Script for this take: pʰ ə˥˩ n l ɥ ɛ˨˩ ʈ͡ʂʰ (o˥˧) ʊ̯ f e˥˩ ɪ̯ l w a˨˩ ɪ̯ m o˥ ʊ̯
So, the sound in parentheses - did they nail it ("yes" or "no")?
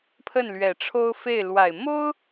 no